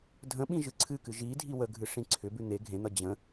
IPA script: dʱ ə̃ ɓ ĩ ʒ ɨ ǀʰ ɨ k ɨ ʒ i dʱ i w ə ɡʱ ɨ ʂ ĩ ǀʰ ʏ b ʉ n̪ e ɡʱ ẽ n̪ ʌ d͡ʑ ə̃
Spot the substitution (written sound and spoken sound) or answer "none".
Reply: none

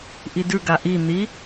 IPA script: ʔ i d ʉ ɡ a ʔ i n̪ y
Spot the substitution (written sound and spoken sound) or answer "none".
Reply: y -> i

